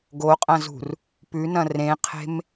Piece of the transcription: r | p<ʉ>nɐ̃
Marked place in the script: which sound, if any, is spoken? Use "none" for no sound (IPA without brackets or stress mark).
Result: ʉ